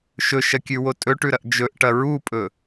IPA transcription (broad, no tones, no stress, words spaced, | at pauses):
ʃɵʃɐkʲʉwo tʼɵʈʉɾɐʔ d͡ʒɵʔʈɐ ɹupʼɵ